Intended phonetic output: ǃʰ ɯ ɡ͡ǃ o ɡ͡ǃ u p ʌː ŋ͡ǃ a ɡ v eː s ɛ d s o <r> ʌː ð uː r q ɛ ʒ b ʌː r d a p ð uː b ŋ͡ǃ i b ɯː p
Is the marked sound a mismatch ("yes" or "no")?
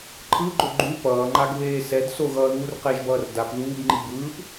yes